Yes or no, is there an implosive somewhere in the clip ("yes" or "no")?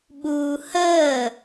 yes